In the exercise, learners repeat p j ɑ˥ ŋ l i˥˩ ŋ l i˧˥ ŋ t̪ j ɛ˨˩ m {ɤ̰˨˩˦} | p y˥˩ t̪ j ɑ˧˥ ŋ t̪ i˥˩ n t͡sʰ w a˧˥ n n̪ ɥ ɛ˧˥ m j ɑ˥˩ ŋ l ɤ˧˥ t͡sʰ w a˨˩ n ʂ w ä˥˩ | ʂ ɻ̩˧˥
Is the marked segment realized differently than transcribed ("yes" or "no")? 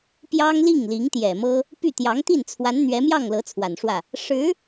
yes